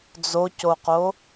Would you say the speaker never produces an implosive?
yes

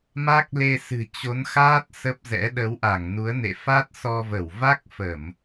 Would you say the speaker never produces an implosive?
no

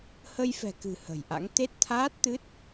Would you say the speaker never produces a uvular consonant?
yes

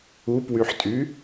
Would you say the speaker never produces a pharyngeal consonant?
no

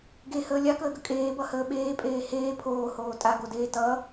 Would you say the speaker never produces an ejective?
no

